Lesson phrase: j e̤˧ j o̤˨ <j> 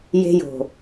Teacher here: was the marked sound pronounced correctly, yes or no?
no